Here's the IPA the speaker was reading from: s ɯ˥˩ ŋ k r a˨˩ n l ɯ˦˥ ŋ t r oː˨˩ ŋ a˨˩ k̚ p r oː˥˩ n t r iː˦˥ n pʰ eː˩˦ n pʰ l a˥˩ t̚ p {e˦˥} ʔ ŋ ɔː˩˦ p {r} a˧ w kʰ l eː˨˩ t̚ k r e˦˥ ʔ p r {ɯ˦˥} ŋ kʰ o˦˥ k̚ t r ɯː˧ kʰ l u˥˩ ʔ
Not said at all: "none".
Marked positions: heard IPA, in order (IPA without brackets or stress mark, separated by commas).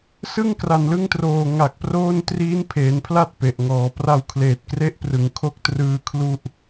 e˨˩, r, ɯ˩˦